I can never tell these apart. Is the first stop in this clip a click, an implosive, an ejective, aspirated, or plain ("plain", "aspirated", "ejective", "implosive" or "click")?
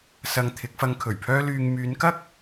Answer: aspirated